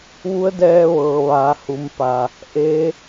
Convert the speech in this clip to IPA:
ʋu˧˥ə̯dɛː˧ʋɤː˩ ʋaː˩˧ hu˩˧mpa˩ | ʔe˧˥

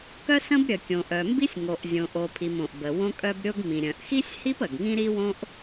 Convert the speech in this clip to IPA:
kœ˥sə̃˥bɾʲə˩ kʲõ˩ʔœ˩mbi˥sʲ ŋo˩ʔzʲõ˩ ʔo˩pʰi˩m õ˩ʔ bə˩wõ˥kʼœ˥b ɾʲo˥ɡ mĩ˩ɾʲœ̃˩ʔxi˥sʲhi˥p ə˩ɡŋĩ˥ ɾi˥wõ˥ʔ

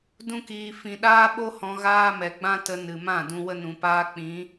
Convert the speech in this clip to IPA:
dũ˦kiː˧ fĩ˨ɗaː˦ɓo˦ hɔ̃˧ɣaː˦mɛ˨ ɡ͡bã˦tə˧ nɨ˨mã˦˨dũ˧ wə˧nũ˨paː˧ k͡pĩ˨˦

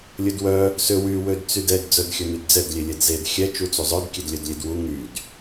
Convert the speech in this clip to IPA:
lʲɵdwœ | sø wy wødt͡sydɛd d͡zœdxʲɵnydd͡zɛd lʲelʲɛdzed xʲɛ t͡ʃut͡suzˤœd kʲedlʲœdlʲedwu ŋyd

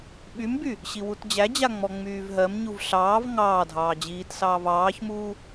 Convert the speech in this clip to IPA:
ɓymby | ɕiwutd͡ʑæd͡ʑa ŋ͡mɔŋ͡myːvɦɜmɲuv ɬɑːv ŋɑːdʱɑː d͡ʑiːtsɑːv ɑːçmuː

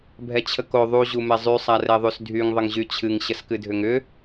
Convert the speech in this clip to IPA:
bʱɛt͡ɕʰəko ðˤu ʑumɛzˤy sˤarɛðˤysdʱyŋ ðˤəŋʑyt͡ɕʰɨŋ ɕəskɨdʱʏŋʏ

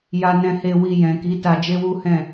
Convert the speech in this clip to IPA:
ja˧nɛ̃˧he˧ wi˧ jɛ̃˨ki˨˦ ta˧d͡ʒe˦wu˦hɛ̃˦˨

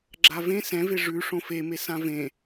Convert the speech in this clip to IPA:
ɡ͡ǁavẽ sɛ̃ve ʐʉ ʂõfeme sãvẽ

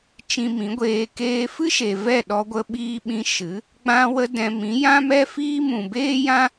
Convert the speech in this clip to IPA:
t͡ʃĩ˧mĩ˨˦ɡʷeː˧ keː˧fɨ˦ ʃe˨ vɛ˦˨ ɗɔ˧ɡʷə˧ɓiː˧ɓĩ˧ ʃɨ˨˦ | ɡ͡bã˧wə˧ dɛ̃˧ mĩ˨˦jã˦mɛ˦fiː˦ mũ˨beː˦jã˦

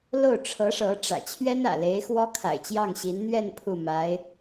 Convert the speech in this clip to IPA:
lo˥˩ʊ̯ʈ͡ʂʰɤ˧˥ʂɤ˧˥ʈ͡ʂä̰˨˩ t͡ɕʰɥɛ˥nä̰˨˩le˧˥ɪ̯xwɔ˥ kʰa̰˨˩ɪ̯t͡ɕjɑ˥˩ŋ ɕi˧˥n n̪ɥɛ˥˧n pʰu˥˩ ma˧˥ɪ̯

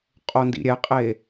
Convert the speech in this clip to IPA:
qʼondḭɾʲɛqʼe

